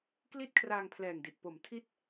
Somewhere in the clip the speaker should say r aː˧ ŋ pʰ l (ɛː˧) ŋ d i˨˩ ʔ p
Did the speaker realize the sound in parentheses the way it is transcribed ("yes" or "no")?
no